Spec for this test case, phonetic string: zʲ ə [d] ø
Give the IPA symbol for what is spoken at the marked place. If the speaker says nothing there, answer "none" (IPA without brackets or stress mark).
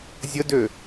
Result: d